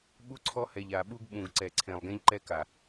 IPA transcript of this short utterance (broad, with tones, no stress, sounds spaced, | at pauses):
ɓ u˦ ǀʰ ɔ˦ h ɛ˨ ʎ a˨ ɓ u˦ ɡ ɓ ũ˨ ɡ ǀ ɛ˨ ǀʰ ẽ˨ lˠ ɡ ẽ˦ ʎ ǃ ɛ˦ k a˨